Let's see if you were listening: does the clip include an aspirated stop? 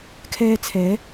yes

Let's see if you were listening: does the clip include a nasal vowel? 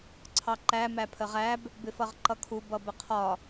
no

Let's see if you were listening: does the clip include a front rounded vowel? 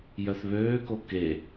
yes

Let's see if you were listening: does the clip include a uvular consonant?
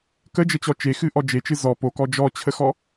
no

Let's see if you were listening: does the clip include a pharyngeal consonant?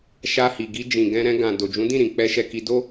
no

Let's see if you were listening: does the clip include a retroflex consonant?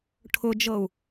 yes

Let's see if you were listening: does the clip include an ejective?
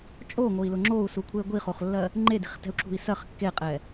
yes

